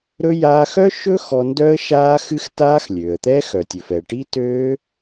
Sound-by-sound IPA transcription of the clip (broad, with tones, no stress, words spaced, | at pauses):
ɾɵ˦˥ jaː˧xœ˦˥ʃɵ˦˥ xɔ˧ndœ˦˥ə̯ ʃaː˦˥xɨ˦˥x taː˦˥xlʲøː˩ə̯t̪ɛ˦˥ xœ˩tʲɵ˩fɛ˩ʈi˦˥ tøː˦˥